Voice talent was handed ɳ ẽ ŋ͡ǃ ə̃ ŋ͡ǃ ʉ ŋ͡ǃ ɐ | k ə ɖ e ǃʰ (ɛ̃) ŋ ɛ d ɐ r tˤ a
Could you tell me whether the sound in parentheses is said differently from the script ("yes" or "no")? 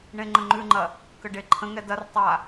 yes